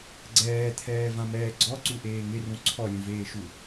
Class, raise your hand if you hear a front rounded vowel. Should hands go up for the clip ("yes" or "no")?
no